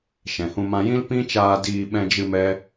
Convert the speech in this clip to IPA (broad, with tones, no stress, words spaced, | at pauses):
ʃɛ̃˨hũ˧ mã˧jĩ˦l pĩ˦t͡ʃaː˧diː˧ ɓɛ̃˧d͡ʒɨ˧ mɛ˦